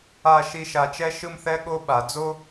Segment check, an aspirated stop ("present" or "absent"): absent